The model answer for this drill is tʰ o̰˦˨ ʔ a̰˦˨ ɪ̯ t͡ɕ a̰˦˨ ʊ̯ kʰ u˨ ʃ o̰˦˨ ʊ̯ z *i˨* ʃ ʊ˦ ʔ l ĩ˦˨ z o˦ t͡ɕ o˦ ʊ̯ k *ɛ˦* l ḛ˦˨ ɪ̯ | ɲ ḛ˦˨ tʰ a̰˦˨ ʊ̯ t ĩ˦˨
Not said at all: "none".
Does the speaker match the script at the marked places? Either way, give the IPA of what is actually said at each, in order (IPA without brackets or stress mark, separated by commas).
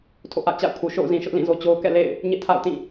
ĩ˨, ɛ̰˦˨